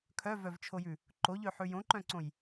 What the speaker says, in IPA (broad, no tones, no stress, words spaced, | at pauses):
kʰœvœvt͡ʃʰojʉ | ǃoʎøħʉ jõǃœ̃ǀõj